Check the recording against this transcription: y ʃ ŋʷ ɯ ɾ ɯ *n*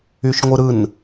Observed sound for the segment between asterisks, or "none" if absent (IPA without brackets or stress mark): n